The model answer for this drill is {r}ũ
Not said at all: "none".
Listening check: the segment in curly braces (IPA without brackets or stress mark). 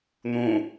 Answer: n̪